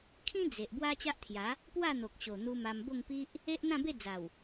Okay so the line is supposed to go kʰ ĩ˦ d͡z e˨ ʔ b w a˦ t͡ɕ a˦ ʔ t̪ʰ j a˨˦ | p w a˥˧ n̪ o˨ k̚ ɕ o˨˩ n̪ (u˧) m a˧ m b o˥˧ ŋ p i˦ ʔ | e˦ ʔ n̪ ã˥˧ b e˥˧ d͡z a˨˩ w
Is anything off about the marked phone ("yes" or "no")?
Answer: no